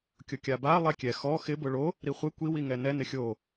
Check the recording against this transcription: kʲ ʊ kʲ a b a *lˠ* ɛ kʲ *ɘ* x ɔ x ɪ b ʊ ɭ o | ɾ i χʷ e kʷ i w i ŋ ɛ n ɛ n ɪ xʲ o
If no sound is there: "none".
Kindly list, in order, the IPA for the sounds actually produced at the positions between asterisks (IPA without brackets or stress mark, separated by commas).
lˠ, ɛ